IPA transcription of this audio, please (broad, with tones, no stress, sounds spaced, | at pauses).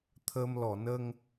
t̪ʰ əː˧ m l ɔ˨˩˨ n ə˧ ŋ